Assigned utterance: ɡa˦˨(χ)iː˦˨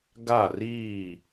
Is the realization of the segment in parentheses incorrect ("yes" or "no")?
yes